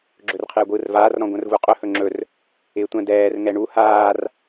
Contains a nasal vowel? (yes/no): yes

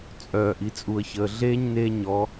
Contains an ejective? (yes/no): yes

